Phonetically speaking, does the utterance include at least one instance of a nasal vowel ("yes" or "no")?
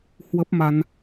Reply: no